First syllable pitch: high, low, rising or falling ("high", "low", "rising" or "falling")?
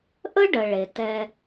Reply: high